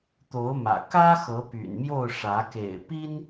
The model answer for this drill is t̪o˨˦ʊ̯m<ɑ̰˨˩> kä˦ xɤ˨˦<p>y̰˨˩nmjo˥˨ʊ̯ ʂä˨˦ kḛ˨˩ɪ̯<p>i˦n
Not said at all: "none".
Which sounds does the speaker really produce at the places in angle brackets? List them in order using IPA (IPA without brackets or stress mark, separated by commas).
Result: ä̰˨˩, p, p